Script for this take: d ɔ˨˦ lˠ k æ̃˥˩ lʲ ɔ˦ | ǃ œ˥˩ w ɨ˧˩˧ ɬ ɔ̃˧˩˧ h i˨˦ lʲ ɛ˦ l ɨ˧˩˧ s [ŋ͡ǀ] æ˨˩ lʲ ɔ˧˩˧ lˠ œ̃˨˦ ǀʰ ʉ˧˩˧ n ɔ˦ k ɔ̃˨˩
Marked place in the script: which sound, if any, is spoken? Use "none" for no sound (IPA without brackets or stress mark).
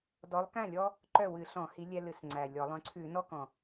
ŋ͡ǀ